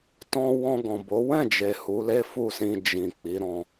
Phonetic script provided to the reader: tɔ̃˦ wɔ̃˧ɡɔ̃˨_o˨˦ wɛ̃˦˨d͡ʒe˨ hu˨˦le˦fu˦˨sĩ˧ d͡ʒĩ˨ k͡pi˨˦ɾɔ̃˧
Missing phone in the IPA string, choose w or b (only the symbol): b